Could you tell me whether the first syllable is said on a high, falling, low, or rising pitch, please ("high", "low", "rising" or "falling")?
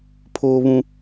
high